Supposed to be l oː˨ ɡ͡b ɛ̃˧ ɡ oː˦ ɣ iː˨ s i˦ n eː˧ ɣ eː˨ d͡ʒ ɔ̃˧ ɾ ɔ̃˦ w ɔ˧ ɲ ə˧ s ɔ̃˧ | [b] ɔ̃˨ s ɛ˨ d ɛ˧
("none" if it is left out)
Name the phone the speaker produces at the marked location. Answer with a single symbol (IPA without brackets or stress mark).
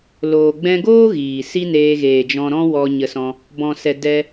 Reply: b